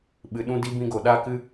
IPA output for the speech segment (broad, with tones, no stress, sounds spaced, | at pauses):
ɓ ɨ˨ ɗ ũ˦ d i˦ b ĩ˧ ɡ o˨ ɗ aː˦ k ɨ˦